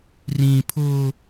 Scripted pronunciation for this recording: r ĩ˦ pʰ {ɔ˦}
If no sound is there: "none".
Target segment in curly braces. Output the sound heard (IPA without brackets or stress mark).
ʊ˦